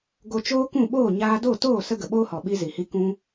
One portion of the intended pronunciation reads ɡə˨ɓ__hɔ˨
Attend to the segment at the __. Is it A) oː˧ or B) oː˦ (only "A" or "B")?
B